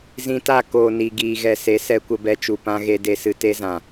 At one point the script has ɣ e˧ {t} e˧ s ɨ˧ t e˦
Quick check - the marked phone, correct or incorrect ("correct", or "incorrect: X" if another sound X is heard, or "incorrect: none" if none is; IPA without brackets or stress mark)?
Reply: incorrect: d